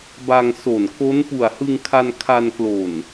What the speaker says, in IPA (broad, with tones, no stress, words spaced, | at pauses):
ba˧ŋ so˨˩nko˦˥n pu˨˩a̯hɯ˧ŋkʰa˧n kʰa˧nklo˨˩n